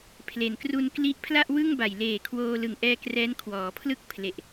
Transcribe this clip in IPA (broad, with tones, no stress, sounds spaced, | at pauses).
pʰ l e˩˦ n k r u˧ n k l i˦˥ ʔ pʰ l a˥˩ ʔ w ɯ˥˩ ŋ b a˨˩ j l eː˨˩ kʰ w oː˧ l ɯ˨˩ ŋ ʔ ɛː˧ k r ɛː˦˥ n kʰ w ɔː˩˦ pʰ l ɯ˥˩ k̚ pʰ l e˨˩ ʔ